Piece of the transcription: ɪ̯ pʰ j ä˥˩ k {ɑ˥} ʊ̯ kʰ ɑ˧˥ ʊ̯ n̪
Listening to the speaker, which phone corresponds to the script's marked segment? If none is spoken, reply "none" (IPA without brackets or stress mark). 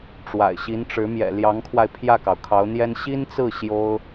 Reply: ɑ˩